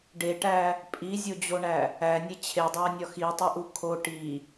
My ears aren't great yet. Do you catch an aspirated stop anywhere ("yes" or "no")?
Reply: yes